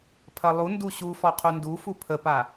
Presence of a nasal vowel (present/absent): absent